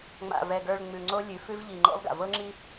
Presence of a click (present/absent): present